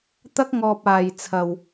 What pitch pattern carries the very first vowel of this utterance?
high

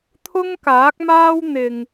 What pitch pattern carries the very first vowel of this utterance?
high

